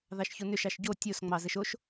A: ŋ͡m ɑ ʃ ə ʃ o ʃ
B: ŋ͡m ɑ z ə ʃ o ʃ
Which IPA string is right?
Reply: B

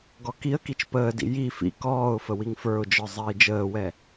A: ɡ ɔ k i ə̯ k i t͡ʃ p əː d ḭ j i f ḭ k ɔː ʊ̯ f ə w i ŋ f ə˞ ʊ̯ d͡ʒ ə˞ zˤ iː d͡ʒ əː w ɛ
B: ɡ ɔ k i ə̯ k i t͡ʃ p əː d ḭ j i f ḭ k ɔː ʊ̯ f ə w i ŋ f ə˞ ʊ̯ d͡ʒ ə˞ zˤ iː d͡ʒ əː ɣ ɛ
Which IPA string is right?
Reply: A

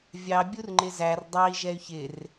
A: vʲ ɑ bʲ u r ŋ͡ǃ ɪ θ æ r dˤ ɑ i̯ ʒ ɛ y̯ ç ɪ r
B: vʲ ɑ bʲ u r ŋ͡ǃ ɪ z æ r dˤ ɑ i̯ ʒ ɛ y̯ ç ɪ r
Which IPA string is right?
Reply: B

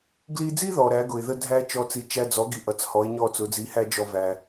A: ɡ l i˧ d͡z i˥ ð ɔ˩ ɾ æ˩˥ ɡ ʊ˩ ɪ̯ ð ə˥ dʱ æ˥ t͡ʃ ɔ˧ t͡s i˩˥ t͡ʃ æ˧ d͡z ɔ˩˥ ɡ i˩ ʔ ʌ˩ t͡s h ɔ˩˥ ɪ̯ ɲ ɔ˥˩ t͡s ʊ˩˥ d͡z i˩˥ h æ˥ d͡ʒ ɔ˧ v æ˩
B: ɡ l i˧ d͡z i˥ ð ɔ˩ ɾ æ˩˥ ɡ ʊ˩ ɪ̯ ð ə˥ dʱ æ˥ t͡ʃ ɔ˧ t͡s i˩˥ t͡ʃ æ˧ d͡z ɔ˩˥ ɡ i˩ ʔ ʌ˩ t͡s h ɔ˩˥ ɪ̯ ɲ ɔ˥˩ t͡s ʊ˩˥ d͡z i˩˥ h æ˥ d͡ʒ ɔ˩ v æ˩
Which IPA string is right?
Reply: A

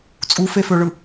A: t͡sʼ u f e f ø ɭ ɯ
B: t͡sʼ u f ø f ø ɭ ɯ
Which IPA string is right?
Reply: A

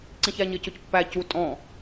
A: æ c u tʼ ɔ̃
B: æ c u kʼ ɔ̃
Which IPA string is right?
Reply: A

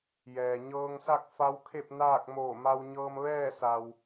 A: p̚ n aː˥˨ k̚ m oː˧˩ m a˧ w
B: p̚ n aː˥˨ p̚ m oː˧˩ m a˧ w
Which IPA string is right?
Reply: A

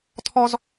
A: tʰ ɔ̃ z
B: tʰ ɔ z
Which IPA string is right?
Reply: B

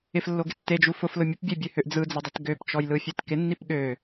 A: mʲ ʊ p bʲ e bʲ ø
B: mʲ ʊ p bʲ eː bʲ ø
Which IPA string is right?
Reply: A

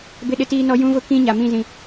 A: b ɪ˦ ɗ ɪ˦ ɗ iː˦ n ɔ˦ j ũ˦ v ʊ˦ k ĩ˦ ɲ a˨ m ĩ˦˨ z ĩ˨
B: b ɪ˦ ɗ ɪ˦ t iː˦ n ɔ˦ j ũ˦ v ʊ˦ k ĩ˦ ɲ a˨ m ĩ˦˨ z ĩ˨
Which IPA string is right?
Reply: B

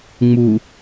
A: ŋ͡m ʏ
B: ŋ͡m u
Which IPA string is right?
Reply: B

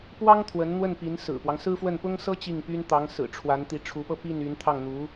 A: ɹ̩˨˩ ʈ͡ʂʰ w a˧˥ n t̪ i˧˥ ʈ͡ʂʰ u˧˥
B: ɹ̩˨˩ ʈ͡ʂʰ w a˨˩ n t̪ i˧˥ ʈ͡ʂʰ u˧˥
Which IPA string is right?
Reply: A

